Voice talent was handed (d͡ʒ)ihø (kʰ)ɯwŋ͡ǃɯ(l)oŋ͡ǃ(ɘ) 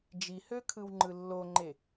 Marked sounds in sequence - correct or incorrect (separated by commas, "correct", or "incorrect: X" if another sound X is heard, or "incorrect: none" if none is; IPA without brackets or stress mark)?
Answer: correct, correct, incorrect: lː, incorrect: e